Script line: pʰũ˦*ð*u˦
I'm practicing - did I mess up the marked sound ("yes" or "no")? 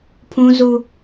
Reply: yes